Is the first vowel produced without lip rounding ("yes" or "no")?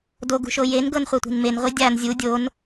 no